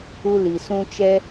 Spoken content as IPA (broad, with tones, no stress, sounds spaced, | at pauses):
u˦ l i˨ s ũ˦ t͡ʃ ɛ˦